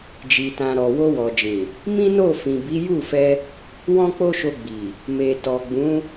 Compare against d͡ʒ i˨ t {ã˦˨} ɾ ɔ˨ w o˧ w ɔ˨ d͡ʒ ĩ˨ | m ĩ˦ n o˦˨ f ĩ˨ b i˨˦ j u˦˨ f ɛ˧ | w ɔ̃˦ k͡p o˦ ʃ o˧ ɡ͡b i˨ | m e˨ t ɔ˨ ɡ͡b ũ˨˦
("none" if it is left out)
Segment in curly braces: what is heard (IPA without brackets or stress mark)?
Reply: ã˨